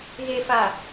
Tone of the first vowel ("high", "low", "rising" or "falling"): low